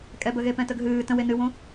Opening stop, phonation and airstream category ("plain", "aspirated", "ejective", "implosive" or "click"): ejective